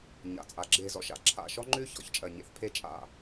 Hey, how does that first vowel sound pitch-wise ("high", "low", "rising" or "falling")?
low